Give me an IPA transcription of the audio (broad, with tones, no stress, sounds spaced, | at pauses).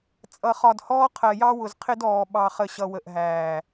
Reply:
t͡sʼ ʌ˨ χ ɒ˨ d h ɔː˦ qʰ ɜ˨ j ɑ˦ w ʊ˨ z qʰ ɪ˦ d ɔː˨ ɓ ɑ˨ χ ə˨ ɕ ʌ˨ w ə˨ ʔ ɦ æː˨